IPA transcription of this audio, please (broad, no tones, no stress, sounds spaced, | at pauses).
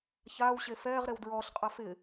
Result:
ç aː w ɕ e f ɛː ʁ ɾ e w d ɹ ɔː ɬ qʼ a f ɪ